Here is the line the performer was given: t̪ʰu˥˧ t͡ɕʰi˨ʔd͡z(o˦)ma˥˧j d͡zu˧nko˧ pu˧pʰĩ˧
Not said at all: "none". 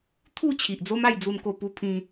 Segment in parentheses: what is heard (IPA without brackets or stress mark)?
o˦